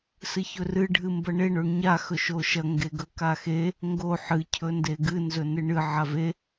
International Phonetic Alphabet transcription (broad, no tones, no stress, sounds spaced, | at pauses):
s ɨ ç ɵ r ɨ ɖʱ ɨ m b ɐ ɳ e ɳ o ɳ ɲ a x ɵ ʃ o ʃ ɐ ŋ ɡ e ɡ ɵ k a x e | ŋ ɡ o ħ ɨ cʰ ɵ n d e ɡ ɨ n z ɵ n ɨ ɳ ɨ ʕ a v e